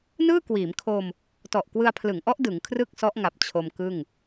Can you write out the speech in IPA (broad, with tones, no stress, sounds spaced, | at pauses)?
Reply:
n ɯː˥˩ k w iː˩˦ m kʰ o˧ m | t ɔ˨˩ ʔ k w ɯ˧ a̯ pʰ l ɯ˩˦ ŋ ʔ ɔ˦˥ ʔ d ɯ˩˦ ŋ kʰ r ɯ˥˩ k̚ s ɔ˦˥ ʔ ŋ a˨˩ p̚ t͡ɕʰ o˧ m k ɯ˥˩ ŋ